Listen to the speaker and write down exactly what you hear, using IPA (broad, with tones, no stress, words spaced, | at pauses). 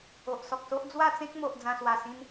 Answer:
o˨ʔsɔ˨k̚so˦ʔ d͡zwa˥˧t͡sẽ˦k̚mo˨ʔ d͡zã˧swa˨˩ sĩ˧n